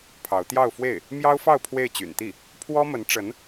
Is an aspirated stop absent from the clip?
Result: no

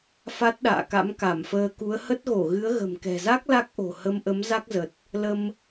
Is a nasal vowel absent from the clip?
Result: yes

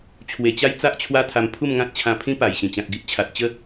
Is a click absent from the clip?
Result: yes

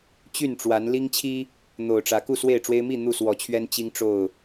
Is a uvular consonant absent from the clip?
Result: yes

